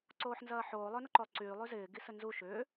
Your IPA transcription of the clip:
ǀ oː ħ n z ɐː ħ oː lˠ ø n ə ǃ o lˠ ǀ yː lˠ y z ɪː ɡ i s ə n z u ʃ ʏː

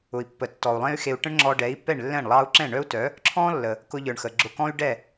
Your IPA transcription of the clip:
ʊ˩ i̯ pː ə˩ tː ɔ˩ u̯ lˠ ẽ˥ y̯ x e˧ u̯ ʈ ə̃˥ ɳ ŋ͡ǁ ɔ˧ ɖ ɛ˩˥ i̯ pː ɛ˥˩ ɳ lː ɛ̃˥˩ ɳ lˠ ɑ˥ u̯ ǁ ɛ̃˥˩ ɳ œ˥ u̯ t œ˩˥ | ǁʰ ɔ̃˥ lː ə˩ | k ʊ˧ ʎ ə˞˩ ɳ x ə˩ ɡ͡ǁ ʊ˧ k ɔ̃˥ y̯ ɖ ɛ˥˩

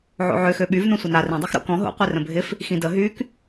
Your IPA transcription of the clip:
ʕ o̰ ʕ ø x ø ɓ y v n õ sʷ ə n a r ĩ dˤ i x ɾ o̰ k ɔ̃ ɦ o̰ qʷ i r ə̃ bʱ ɪ f | x ĩ d ə ɦ y k

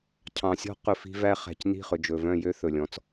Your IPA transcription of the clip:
cʰ ɑ̃˨ sʲ ɔ̤˦ q ɵ˨ f i̤˦ v æ˦ χ æ̤˨ c n i̤˦˨ χ ɵ˨ d͡ʒ ɵ˨ v œ̃˦˨ j ø˦ θ ɵ˨ lʲ ɔ̃˦ t͡s

